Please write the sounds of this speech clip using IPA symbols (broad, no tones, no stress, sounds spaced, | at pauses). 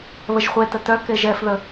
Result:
β ə ʒ χʷ e t ə t œ k e ʒ ɛ f ð ə